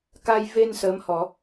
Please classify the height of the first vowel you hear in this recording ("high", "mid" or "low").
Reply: low